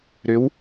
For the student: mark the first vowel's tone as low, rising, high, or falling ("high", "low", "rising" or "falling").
rising